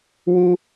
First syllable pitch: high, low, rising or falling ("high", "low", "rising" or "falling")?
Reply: high